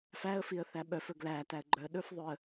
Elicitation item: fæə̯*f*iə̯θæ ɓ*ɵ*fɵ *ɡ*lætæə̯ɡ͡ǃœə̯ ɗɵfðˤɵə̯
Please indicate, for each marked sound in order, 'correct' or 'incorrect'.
correct, incorrect: œ, correct

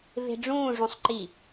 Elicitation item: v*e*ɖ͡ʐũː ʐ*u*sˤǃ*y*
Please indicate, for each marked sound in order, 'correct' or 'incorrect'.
incorrect: e̤, incorrect: ũ, incorrect: i

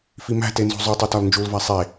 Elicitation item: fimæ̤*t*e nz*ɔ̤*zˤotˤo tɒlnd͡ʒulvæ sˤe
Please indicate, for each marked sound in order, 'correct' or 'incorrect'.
correct, incorrect: o̤

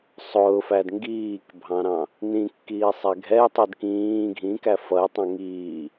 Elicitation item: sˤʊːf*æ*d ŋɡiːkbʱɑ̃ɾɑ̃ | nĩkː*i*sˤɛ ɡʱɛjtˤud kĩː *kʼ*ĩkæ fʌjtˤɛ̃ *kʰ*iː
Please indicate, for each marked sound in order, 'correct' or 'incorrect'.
correct, incorrect: iː, incorrect: ɡʱ, incorrect: ŋ

